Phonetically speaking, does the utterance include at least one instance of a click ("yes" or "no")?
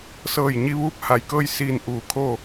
no